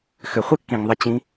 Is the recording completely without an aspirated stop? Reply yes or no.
yes